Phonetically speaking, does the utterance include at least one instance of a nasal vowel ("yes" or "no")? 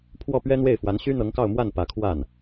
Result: no